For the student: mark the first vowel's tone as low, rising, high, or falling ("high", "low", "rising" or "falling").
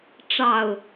low